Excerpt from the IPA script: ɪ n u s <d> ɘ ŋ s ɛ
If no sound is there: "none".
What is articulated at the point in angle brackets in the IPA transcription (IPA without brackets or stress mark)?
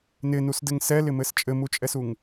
d